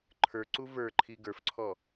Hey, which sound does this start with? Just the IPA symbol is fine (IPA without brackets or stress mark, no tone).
ǃʰ